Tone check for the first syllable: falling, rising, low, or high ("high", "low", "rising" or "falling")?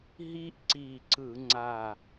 high